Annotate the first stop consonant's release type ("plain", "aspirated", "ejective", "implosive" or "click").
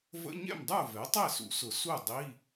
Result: plain